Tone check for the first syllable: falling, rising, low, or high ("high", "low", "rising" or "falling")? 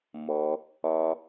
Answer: low